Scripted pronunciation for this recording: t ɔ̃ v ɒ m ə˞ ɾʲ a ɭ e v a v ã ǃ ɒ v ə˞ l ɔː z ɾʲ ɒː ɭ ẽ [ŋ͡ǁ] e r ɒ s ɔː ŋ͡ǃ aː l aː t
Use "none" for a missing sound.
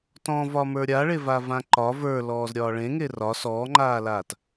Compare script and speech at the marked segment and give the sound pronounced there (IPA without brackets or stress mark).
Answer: ŋ